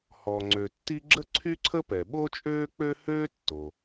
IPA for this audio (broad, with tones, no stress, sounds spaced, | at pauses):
h ɔ˩ ŋ͡ǀ ø˩ tː i˥ ɡ͡ǁ ə˥ ǀʰ y˥ ǀʰ ə˥ p ɛ˩ ɓ o˥ t͡ʃʼ øː˥ k͡p ø˥ h øː˥ tː o˩